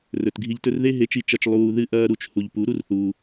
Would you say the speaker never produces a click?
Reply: yes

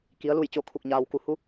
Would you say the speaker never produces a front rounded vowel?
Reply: yes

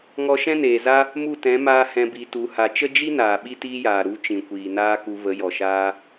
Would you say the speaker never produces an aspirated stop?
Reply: yes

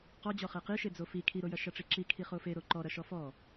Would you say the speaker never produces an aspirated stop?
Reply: no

